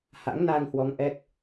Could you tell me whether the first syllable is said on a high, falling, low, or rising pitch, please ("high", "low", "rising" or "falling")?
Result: rising